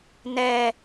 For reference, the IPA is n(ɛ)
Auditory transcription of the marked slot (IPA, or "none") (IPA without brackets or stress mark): ɛ